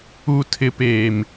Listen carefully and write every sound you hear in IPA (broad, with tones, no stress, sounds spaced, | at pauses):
u˨ tʰ ɪ˨ p eː˨ m